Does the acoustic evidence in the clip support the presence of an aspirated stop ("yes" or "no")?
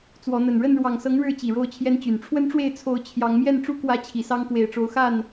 yes